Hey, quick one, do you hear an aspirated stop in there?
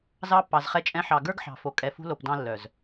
no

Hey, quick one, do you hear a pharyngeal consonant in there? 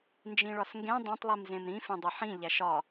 yes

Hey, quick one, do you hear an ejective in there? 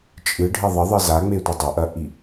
yes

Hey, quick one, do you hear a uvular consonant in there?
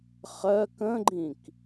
yes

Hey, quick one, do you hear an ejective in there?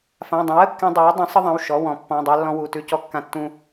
no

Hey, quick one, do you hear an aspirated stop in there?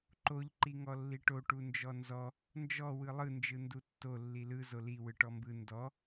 no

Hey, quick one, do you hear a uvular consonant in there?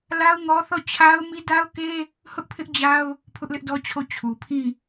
no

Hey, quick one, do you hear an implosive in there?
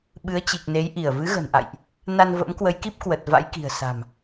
yes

